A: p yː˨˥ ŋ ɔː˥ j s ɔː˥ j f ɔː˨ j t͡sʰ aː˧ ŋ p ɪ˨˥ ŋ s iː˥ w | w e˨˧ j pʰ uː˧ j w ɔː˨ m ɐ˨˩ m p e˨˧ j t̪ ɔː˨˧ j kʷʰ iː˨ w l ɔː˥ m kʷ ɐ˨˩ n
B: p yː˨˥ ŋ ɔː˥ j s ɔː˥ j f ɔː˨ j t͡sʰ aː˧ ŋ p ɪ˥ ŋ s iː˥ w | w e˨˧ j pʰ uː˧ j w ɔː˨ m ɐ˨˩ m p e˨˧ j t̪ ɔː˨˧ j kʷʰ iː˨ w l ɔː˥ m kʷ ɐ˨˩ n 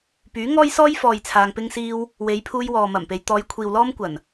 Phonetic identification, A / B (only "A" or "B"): B